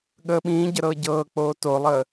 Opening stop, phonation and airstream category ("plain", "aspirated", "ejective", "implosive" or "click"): implosive